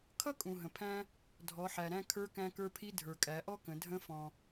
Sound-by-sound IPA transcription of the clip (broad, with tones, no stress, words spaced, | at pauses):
kʰʌ˥kʼũ˩ ɦə̃˩pʰæ̃˥ | dʱɔ˩˧ħæ˩ɾæ̃˧ kʰə˞˧˥kæ̃˧kə˞˧pʰi˧˥ dʱə˞˩kʼæ˩˧ʔɔ˥kə̃˩˧ dʱə̃˧˥fɔ̃˩